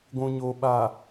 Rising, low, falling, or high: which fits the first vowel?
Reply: low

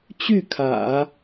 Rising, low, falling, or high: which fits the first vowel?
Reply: falling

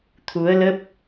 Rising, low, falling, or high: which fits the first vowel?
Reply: rising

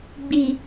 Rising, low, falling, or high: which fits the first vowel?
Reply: low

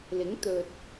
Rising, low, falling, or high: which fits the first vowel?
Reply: rising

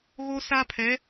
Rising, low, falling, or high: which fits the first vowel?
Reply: high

